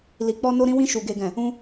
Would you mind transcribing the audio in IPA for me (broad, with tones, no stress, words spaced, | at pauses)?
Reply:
li˧k͡pɔ˦ no˦ɾĩ˦wĩ˦ʃu˧ ɡe˦ɡɛ̃˦˨ | ũ˦